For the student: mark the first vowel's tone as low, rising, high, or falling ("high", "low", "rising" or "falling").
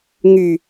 low